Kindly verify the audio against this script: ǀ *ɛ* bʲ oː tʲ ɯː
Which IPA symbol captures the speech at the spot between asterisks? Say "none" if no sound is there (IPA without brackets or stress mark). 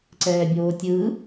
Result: ɛː